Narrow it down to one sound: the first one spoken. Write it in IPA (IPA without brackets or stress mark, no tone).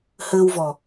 h